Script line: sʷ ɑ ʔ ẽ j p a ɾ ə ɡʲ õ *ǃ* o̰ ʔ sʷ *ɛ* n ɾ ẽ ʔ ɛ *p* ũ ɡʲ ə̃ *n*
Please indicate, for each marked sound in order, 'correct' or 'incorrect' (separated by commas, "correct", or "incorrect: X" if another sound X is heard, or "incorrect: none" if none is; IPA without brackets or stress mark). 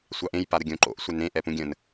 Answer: correct, correct, correct, correct